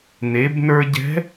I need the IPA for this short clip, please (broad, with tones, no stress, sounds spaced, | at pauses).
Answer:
n e˩˧ b n ə˞˧ ɟ ɛ̤˧˥